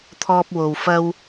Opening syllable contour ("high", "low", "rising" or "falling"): high